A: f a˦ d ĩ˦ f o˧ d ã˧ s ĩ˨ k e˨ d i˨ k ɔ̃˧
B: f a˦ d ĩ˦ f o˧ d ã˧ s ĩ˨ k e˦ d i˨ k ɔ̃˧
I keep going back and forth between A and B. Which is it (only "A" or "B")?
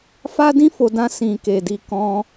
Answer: A